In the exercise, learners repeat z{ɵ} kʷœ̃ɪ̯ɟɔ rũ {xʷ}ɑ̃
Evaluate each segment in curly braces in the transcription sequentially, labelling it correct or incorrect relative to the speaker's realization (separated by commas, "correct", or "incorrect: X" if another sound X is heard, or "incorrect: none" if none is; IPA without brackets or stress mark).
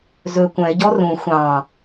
correct, correct